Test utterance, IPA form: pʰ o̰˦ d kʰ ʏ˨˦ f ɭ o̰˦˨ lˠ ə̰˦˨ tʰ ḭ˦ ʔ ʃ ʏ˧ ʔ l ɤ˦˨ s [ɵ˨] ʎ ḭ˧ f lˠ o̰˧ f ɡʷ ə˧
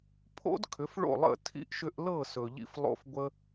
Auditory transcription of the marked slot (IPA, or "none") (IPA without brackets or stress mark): ɵ˨